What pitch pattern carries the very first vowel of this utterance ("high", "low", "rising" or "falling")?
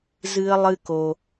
high